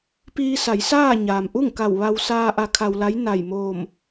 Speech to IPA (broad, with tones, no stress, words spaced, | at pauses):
piː˧sa˩˧j saː˥˨ɲaː˩m ʔu˥˨ŋka˧˩w ʋa˧w saː˧ ʔa˧kʰa˧wla˧˥jna˧˩j moː˧˩m